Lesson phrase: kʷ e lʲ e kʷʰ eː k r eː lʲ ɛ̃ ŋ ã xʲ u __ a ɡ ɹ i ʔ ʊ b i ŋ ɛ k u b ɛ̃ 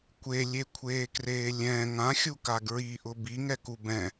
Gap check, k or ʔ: k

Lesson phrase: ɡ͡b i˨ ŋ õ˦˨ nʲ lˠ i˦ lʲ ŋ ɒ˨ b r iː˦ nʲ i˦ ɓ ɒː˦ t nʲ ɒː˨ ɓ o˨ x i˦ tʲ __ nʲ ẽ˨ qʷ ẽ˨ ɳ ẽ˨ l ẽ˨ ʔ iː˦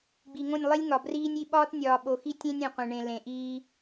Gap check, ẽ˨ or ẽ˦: ẽ˦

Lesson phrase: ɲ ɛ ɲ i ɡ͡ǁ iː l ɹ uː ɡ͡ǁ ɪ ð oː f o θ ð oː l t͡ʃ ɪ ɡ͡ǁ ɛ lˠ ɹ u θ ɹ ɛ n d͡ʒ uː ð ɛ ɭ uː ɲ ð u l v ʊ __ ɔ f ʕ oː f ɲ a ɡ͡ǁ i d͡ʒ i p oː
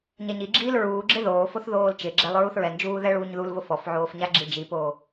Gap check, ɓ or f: f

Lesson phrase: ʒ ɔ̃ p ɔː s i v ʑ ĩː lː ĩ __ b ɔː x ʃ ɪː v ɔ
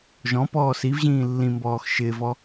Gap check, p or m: m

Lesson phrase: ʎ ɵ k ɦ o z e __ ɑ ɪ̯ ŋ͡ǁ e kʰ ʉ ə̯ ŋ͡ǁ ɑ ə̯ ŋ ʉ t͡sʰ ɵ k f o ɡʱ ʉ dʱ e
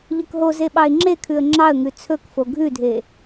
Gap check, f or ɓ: ɓ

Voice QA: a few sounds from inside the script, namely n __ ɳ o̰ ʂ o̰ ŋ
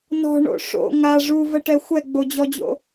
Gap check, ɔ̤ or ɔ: ɔ̤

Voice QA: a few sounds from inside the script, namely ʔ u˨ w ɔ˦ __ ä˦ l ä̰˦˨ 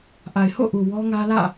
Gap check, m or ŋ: ŋ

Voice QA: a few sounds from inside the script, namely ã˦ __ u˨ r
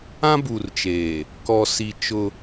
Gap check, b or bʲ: b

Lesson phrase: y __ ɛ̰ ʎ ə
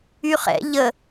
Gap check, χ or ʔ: χ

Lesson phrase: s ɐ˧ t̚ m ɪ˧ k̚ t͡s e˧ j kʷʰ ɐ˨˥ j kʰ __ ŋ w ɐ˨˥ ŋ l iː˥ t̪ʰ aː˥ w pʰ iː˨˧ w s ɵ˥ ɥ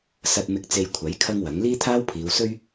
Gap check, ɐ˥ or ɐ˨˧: ɐ˥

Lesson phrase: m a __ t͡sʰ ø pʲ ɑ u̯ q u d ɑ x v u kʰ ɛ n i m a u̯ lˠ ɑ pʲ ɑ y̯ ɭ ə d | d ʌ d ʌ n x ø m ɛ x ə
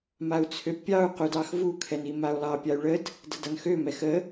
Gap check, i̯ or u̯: u̯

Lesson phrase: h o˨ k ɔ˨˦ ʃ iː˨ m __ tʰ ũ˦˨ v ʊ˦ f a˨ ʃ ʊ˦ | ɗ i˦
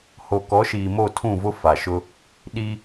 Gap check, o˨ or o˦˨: o˦˨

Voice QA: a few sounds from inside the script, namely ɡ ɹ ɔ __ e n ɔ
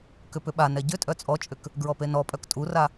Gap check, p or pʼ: p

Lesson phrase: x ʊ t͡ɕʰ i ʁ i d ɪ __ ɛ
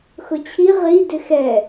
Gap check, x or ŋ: x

